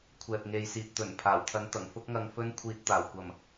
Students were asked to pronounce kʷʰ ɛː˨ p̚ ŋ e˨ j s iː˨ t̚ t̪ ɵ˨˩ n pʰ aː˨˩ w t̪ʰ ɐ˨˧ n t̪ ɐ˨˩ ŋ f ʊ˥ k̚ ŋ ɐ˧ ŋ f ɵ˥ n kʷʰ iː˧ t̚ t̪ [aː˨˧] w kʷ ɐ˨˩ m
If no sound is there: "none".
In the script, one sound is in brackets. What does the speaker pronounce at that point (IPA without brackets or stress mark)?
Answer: aː˨˩